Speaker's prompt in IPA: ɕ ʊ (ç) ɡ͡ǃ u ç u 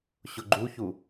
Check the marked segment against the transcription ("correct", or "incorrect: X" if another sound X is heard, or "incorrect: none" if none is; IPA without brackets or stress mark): incorrect: none